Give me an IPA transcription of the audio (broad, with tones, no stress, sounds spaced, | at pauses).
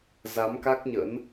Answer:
z a˨˦ m k a˦˥ k̚ ɲ ə̰˧˥ n